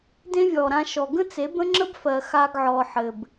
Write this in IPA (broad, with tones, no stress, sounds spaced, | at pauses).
d ẽ˦ vʲ ɔː˨ ɾ ã˧ ʃ ɔ˨ ɡ ə̃˦ t͡s e˨˦ b ə̃˦ ŋ͡ǁ ə˦ b f ɜ˨ x a˧ ɡ ʕ ɔː˨ ħ ɘ˨ b